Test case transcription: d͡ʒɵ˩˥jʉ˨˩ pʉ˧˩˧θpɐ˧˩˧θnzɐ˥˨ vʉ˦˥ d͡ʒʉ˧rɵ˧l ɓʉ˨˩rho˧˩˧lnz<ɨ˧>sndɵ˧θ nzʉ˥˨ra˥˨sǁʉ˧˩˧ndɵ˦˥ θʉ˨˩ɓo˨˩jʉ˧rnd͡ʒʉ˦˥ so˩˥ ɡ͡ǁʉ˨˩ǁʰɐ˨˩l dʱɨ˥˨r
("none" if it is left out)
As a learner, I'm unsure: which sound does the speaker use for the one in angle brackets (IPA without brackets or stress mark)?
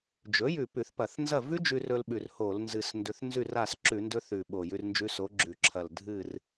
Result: ɨ˨˩